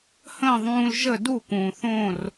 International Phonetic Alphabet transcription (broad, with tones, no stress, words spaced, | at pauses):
hə̃ː˥˩ðˤũː˧l ʒə˥˩du˥˩ kũː˩θõː˥˩r